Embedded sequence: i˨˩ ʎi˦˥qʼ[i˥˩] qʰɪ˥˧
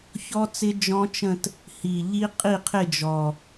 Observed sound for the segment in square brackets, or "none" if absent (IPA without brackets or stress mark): i˥˩